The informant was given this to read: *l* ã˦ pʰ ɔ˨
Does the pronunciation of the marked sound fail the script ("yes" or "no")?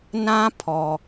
yes